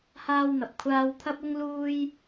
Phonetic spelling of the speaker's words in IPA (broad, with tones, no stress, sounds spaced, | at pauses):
h aː˥ w n̪ ɐ˨ p̚ kʷʰ aː˧ w t̪ʰ ɐ˥ p̚ ʊ˥ ŋ l uː˥ j